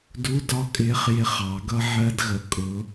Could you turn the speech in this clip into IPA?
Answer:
du˧˥˧ dɒ˥kʼɪː˧˥χ jɪ˧˥˧χɑ˨˩˦ɡʌ˥ ʕɜ˥dɣə˧˥ kʼʊ˧˥

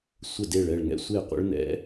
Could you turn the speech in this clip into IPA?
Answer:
sʷə˥˩ de˥˩ɭɛ˥˩ɭ ŋɛ̰˦˥sʷe˥˩ qʷə̰˦˥ɭnɛ̰˦˥

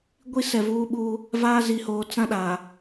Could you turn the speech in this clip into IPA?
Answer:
ɡʷi˦sɛ˨vuː˦ɓuː˦ | vaː˦ zi˨hoː˨ t͡sã˦ɗaː˨

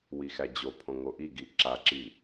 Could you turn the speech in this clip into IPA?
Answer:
wixæd͡ʑopʰõ ŋoʔiɡi ǁaǁi

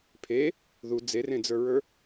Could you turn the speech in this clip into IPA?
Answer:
pʰe | ðu d͡zerẽd͡zə˞ɹə˞

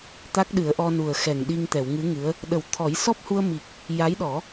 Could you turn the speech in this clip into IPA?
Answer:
t̪a˦˥k̚ɗɨ˨˩˦ə̯ʔɔ˧ nu˨˩ə̯xɛ˨˩ŋ ɗi˧ŋt̪ɛ˨˩˨wŋɨ˧˥ŋɨ˧˥ə̯ | ɗə˨˩˦wt̪ʰɔ˨˩˦j sɔ˦˥p̚hu˧ə̯mi˨˩k̚ | ja˧˥jɗɔ˨˩˦

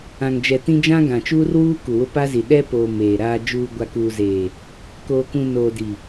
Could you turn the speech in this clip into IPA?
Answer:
ã˨ŋd͡ʒɛ˨tĩ˦ d͡ʒã˦ɡã˨t͡ʃuː˦rwuː˦ ku˨wʊ˦pa˦zi˨ ɗɛ˦poː˨ meː˨ ɾaː˨d͡ʒuː˨ ɡʷa˨kuː˨zeː˨ | koː˨kũ˨ noː˨di˨

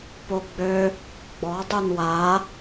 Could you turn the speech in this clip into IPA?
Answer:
poɡ͡bø | ɡ͡bɔ dˤunwa

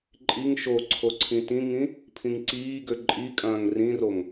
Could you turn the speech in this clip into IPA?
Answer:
ǃʼiŋ ʃoǀʰo ǀʰĩtĩŋĩ | pʰĩŋǀiːɡø ǃʼikʼɐ̃ːŋ rĩroŋ

